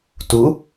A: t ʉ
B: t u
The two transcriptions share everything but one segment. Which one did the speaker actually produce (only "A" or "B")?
B